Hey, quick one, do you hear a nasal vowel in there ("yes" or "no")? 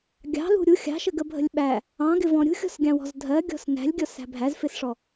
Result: yes